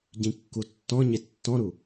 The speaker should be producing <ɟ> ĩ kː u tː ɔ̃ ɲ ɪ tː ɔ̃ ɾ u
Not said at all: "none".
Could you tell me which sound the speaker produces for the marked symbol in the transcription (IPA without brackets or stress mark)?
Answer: ɟ